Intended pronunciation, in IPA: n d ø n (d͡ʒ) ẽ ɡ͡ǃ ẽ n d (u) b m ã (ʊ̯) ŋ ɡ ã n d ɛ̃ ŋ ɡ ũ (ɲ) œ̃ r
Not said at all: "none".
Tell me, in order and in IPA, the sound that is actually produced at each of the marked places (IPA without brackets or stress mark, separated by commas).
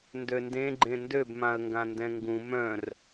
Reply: d, ø, ə̯, m